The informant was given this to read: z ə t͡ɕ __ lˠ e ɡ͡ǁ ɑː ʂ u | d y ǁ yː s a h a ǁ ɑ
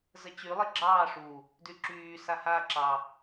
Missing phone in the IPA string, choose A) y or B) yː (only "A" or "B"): A